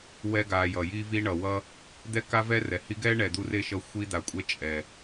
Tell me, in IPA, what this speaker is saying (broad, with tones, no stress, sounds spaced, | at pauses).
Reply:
w ɛ˦ ɡ a˨ j ʌ˩ j i˦ v i˦ ɳ ʌ˩ w ʌ˦ | d̪ ɛ˥ k a˥ v ɛ˥ r ɛ˩ h i˦ ɡ ɛ˥ ɳ ɛ˨ d̪ u˦ r e˥ ʃ ʌ˦ xʷ i˦ d̪ a˨ kʷʼ ɛ˦ t͡ʃʼ ɛ˨